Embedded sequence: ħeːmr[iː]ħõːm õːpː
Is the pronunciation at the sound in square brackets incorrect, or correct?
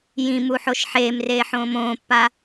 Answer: incorrect